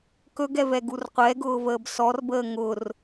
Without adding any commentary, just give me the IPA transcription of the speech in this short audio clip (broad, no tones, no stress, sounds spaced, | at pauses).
k ɵ ɡ ɛ v ɛ ɡ u r qʷ ɛ ɡ ʊː v əː b s ɔ r b əː ŋ ʊ r